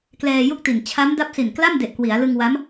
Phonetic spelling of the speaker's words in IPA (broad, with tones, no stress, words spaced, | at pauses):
klɛː˧ju˥˩k̚ti˨˩n t͡ɕʰa˦˥mda˦˥p̚si˨˩nkla˥˩m de˨˩ʔkwi˩˦a̯lɯ˧ŋwa˦˥m